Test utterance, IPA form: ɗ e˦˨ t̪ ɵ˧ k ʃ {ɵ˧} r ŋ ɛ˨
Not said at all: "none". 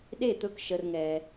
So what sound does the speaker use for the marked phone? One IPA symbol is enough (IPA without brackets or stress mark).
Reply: ə˧